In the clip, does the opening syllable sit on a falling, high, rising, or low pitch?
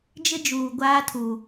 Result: high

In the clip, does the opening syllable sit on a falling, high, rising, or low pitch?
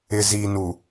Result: low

